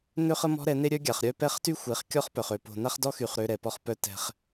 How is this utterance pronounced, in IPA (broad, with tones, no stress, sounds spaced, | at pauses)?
n ø˦ χ ə˦ m ɔ̤˦ ɾ ɛ˨˦ n e˦ ɾʲ œ˦ ɡʲ a˨ χ ɾʲ œ˦ p ɛ˦ χ t y˦ xʷ e˨˦ χ kʲ ɔ˦ χ p œ˨ χ ø˨ p o̤˨ n a˦ χ d ɔ˦ x y˨ χ ɾ ø˦ ɾ ɛ˨ p ɔ˦ χ p œ˦ t ɛ̤˨ χ